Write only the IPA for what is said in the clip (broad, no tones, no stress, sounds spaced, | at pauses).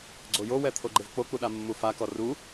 ɡ͡ǀ o j o w ɛ t̪ʰ o ɡ͡ǃ e v k͡p o k͡p u ɗ a mː u f a k ɔ r u